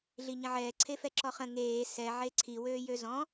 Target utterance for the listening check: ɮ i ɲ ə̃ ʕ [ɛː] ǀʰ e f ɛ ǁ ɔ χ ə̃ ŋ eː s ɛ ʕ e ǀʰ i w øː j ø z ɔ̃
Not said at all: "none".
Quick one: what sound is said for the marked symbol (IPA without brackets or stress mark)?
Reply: ɛː